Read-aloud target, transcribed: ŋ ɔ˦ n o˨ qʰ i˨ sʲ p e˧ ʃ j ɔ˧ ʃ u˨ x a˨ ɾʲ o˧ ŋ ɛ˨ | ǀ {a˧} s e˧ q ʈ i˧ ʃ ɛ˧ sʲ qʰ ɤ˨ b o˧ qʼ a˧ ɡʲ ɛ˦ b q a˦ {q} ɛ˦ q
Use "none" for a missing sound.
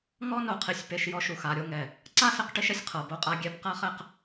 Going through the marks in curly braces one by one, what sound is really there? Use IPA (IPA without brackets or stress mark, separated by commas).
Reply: a˦, χ